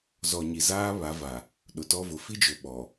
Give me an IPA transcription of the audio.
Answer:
z ɔ˨ ɲ i˨ z aː˦ β a˨˦ v a˨ | ɗ ʊ˨ t ɔ˦ v ʊ˨˦ f i˦ d͡ʒ ʊ˨ ɓ ɔ˨

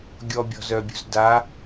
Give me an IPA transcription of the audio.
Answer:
ɡʲ ɔ bʲ ɔ̤ z œ bʲ ṳ z d a

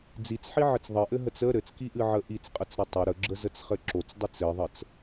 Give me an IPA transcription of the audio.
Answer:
d͡z i t͡s ħ i ʕ ɘ t͡s ðˤ ɘ ʔ ɘ ɦ ə t͡s ə ɾ ɘ t͡s k i ʔ ɨ ʕ ə ʔ i t͡s qʼ ə t͡s ɾ ɘ tˤ ə ɾ ə ɡ͡ǁ ə z ə t͡s χ ɘ ǁ o t͡s dˤ ɨ t͡s ɘ ðˤ ə t͡s

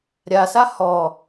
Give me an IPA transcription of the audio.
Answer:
ɾʲ a s a h ɔ

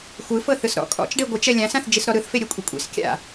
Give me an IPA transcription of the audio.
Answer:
xʷ ɯ f ɤ θ ɯ s ɾ ɔ̰ kʼ ɔ̰ t͡ʃ ɖ e ɡʷ ɯ t͡ʃ ɛ lʲ ã s ã θ d͡ʒ i s ɾ ɔ ɾ ɯ θ f e ɾʲ e kʷʼ i kʷʼ ḭ s kʲ a̰

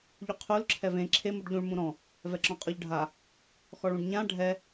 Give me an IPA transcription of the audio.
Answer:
ʎ u qʰ u l ǁʰ ɛ v ẽ ǁʰ e m u ɖ ʎ ũ ɭ m ũ ɾ ɔ̃ | v ɛ ǁ ɔ̃ qʼ ɔ ʎ ɖʱ a | x ɔ ɭ ũ ɖ ɲ ã ɖʱ ɛ

